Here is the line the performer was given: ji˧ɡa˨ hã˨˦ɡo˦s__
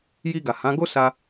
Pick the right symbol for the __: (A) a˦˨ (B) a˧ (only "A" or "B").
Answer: B